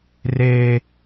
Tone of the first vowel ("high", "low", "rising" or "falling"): high